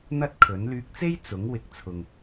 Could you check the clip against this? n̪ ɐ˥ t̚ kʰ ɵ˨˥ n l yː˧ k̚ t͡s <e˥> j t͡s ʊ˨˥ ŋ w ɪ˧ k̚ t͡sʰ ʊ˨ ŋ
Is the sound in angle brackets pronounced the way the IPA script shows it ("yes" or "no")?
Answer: yes